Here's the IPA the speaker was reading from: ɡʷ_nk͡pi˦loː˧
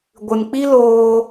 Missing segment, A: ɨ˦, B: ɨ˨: B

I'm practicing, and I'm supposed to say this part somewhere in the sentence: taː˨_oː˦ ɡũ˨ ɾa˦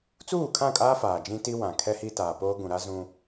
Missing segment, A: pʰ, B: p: B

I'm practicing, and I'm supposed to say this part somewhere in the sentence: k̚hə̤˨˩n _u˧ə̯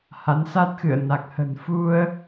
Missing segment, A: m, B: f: B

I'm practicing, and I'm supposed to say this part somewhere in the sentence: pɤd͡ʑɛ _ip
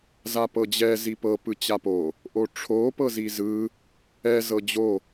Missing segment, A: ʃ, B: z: B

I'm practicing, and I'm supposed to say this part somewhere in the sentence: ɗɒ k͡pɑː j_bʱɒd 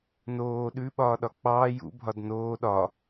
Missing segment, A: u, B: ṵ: B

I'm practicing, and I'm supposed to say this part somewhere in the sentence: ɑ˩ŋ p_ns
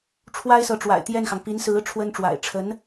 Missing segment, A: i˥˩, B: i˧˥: B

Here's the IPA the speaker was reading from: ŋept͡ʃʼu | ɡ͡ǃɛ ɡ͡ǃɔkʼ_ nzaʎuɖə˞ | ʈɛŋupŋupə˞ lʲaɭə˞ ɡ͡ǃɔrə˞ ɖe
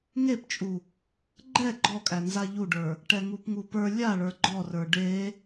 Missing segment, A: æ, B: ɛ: A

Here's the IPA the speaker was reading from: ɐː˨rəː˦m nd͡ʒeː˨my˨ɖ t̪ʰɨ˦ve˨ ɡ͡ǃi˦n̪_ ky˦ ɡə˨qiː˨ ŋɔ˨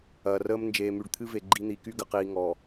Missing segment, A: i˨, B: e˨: A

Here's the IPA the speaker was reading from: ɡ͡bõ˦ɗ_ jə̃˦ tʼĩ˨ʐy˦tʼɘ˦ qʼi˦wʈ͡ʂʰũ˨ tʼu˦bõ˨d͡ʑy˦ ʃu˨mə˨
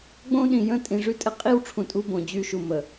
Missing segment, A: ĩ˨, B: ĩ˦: A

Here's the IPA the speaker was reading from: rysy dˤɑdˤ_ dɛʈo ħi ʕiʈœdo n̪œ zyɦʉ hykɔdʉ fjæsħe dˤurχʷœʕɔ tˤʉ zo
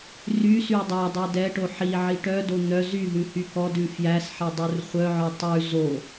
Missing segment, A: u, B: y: A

